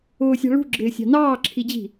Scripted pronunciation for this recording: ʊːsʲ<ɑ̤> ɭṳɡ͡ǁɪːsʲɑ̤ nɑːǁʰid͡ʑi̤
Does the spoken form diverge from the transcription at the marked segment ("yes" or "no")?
no